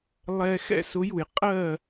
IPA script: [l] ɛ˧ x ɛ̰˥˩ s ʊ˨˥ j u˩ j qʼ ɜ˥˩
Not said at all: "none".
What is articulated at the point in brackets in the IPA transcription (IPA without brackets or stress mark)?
lˠ